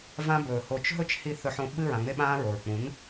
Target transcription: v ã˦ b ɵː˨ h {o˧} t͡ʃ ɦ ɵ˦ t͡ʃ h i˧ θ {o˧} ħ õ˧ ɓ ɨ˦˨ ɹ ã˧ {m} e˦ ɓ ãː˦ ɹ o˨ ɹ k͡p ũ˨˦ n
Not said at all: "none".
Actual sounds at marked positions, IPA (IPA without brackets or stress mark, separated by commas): o˧, ɵ˧, ŋ͡m